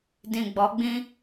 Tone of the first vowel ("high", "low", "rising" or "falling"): low